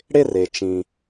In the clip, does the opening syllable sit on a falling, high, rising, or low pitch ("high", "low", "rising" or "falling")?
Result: falling